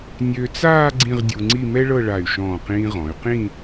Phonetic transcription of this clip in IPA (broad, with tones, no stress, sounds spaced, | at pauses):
nʲ ø˧ t͡s aː˥˧ ɡ͡ǀ ĩ˥˧ ʁ dʲ u˧ ŋ͡ǀ i˥˧ m ɛ˥ ɭ ɤ˥˧ ɭ a˧˩ y̯ ʃ ɔ̃ː˧˩ q ĩː˧ ʁ ɔ̃˩˧ y̯ q ĩ˥˧